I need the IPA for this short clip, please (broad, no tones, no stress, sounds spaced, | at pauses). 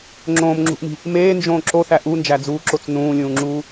ŋ͡ǁ õː m ŋ͡ǁ ṳ ʔ m i̤ | m eː n d͡ʒ õː ǁ o θ æ ʔ u n d͡ʒ æ d͡z uː ǁ o t͡s n ũː lʲ ũː ŋ͡ǁ uː